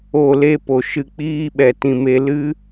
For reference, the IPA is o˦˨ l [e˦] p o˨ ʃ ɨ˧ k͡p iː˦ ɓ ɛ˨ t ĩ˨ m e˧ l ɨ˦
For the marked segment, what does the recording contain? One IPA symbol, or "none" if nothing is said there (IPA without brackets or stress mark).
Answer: e˦